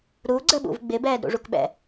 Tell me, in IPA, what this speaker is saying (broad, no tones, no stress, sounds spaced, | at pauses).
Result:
ɾ u ɡ͡ǀ ə ɓ ṵ v ɡ͡b ɪ b ɛː d ɾ ṵ ʐ u k ɓ ɛ̰